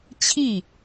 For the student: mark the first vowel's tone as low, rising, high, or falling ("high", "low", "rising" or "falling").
falling